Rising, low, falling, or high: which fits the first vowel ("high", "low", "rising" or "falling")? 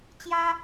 high